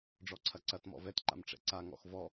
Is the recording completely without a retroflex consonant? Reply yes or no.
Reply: no